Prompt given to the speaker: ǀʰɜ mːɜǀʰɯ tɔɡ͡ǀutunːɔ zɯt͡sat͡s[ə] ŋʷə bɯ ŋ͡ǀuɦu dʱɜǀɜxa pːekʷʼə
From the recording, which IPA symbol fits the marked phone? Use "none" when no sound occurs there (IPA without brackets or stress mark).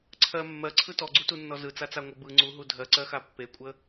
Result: a